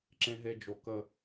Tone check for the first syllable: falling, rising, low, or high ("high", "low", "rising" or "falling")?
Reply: high